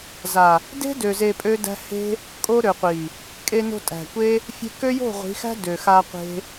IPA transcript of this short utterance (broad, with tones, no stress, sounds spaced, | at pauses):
z a˨ | d e̤˦ d ø˨ z e˧ pʼ ø˦ d æ̤˦ h e̤˦ | kʼ o˦ ɾ ø˨ qʷ i˨ | kʼ e˧ n o̤˧ tʼ æ̤˨ kʷ e˦ | fʲ e̤˦ k ø˦ j o̤˦˨ ʁʷ i̤˨˦ x æ̤˦ d ø˨ x a˧ qʷ e̤˦